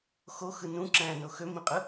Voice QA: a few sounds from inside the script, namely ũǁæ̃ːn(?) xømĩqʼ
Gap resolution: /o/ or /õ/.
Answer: o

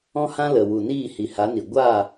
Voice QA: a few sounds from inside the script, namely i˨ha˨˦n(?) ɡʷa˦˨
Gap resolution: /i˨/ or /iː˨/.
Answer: i˨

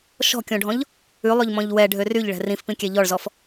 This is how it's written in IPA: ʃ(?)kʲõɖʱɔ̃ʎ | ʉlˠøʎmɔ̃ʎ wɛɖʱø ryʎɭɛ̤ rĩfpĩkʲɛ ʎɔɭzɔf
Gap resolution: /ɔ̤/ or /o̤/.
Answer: ɔ̤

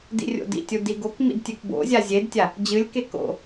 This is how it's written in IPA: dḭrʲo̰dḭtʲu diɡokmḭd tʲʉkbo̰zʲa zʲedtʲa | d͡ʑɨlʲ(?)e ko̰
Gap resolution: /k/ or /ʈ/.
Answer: k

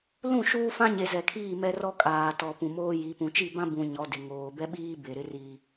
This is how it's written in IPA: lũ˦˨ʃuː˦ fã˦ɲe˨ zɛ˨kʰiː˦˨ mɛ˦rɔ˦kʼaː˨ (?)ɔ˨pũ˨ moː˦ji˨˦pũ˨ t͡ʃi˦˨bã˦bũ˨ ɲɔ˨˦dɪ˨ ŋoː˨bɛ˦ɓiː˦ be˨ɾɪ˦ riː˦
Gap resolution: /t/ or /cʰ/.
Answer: t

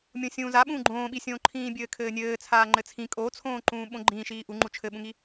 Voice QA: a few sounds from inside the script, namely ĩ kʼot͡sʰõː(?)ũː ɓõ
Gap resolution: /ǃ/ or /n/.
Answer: ǃ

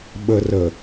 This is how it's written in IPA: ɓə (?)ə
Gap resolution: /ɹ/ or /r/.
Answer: r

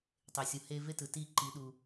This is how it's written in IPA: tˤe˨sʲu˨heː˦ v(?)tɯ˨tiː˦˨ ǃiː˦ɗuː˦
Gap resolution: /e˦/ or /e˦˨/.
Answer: e˦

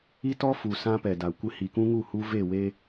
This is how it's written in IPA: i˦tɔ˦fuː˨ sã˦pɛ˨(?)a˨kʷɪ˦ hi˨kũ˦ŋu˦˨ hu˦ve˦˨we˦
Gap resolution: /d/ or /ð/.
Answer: d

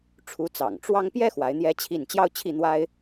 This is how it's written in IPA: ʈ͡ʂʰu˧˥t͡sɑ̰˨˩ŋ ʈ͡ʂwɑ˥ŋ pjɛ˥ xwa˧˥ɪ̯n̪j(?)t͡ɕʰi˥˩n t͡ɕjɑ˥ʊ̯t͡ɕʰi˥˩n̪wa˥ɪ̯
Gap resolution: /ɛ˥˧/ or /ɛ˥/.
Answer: ɛ˥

